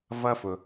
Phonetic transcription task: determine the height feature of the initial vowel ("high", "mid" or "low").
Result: mid